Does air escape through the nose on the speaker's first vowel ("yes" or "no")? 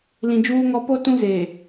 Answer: yes